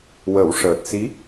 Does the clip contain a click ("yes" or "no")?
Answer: no